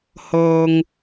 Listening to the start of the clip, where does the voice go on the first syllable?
low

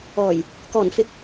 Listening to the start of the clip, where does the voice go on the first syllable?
low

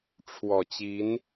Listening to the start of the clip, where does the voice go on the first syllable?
low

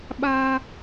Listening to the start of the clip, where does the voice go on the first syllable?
high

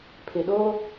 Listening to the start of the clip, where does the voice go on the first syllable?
low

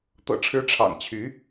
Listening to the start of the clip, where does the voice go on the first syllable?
low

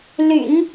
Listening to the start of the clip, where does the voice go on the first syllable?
low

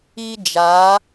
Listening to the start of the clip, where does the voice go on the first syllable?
high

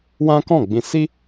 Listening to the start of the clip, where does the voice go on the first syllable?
high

